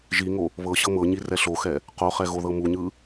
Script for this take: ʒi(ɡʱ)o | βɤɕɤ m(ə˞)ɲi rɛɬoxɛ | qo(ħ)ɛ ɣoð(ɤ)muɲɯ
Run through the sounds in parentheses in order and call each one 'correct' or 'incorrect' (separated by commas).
incorrect, incorrect, incorrect, correct